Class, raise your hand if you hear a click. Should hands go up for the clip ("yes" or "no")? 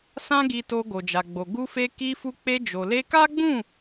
no